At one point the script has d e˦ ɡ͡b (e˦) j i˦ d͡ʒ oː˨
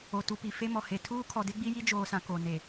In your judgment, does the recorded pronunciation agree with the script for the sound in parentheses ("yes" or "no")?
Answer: no